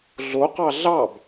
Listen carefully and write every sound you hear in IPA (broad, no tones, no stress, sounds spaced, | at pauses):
ɮ o q ɑ ɮ ɑ b